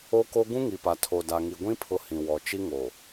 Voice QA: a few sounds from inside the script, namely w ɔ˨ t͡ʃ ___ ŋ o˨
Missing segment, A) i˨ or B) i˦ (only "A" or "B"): B